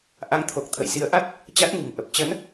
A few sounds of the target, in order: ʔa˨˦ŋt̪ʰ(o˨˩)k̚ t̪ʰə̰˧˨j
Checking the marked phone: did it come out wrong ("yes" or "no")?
no